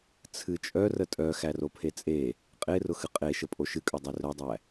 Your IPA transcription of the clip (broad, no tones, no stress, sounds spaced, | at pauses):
t͡sʰ ɨ t͡ʃʼ œ r ə tʼ œ x æ r o pʰ e t͡sʼ e | qʼ e r ʊ x ɨ qʼ e ʃ ə pʼ o ʃ ɨ kʼ œ dˤ e r œ dˤ æ